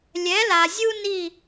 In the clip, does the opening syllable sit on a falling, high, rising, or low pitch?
rising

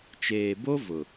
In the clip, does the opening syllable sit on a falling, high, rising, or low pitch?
low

